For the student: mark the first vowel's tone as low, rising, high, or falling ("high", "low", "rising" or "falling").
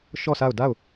falling